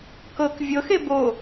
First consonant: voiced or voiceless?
voiceless